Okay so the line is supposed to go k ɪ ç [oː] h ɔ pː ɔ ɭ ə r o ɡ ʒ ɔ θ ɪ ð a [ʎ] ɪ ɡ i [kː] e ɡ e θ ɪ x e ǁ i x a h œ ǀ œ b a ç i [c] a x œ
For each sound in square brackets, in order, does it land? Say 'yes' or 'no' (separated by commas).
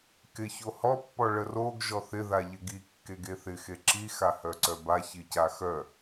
no, yes, yes, yes